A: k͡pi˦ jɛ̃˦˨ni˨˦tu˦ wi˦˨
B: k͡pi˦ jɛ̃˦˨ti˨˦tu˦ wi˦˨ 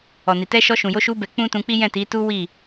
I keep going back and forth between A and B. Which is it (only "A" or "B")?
B